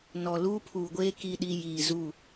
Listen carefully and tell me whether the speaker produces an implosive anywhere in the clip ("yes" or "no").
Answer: yes